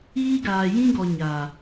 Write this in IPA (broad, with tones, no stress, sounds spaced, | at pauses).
iː˦ ɡ aː˨ j ĩ˦ ɡ ɔ˨ ɲ a˨